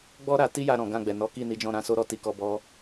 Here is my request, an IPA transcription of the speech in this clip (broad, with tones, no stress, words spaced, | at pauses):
ɡ͡bɔ˦ ɾa˧ ti˦ja˧ ɾɔ̃˨ɡã˧ɡ͡bɛ˨nɔ˨˦ ki˦˨ni˨˦d͡ʒɔ̃˦˨ ɾã˧ so˦ɾɔ˦˨ ti˧kɔ˧bɔ˦